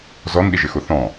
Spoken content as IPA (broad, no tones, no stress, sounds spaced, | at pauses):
z ɔ n ɗ i ʒ ɪ x ʊ θ ɔ̃